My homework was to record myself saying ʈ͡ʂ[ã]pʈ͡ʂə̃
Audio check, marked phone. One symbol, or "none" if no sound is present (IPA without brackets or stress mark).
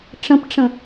ə̃